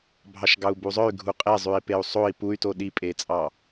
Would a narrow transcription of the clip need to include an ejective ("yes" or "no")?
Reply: yes